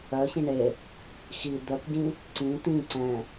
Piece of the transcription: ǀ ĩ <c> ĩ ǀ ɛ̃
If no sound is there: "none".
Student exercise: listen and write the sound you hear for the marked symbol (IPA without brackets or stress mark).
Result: t̪